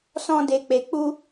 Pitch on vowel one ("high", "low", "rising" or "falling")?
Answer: high